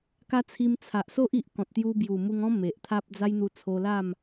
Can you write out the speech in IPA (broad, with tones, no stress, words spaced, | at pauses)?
ka˦t͡sʰi˧m t͡sʰa˨ʔso˦ʔi˨ʔ kɔ̃˨t̚t̪ju˧bju˨˩mu˧ŋ ɔ̃˦ me˨ʔt̪ʰa˦p̚ d͡za˦jn̪u˧t͡sʰo˧la˥˧m